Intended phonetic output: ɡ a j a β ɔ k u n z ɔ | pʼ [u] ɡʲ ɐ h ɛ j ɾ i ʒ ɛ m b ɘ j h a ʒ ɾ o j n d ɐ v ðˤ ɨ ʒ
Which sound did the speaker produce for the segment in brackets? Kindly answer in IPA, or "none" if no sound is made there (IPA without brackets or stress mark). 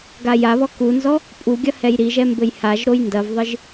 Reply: u